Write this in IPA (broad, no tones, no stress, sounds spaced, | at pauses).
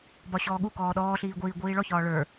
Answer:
b ɒ ɕ ɔː ɠ u k ɔː ɗ ɔː ɬ iː ɡʷ iː ɡʷ iː ɭ ɔ ç ɒː ɭ ə˞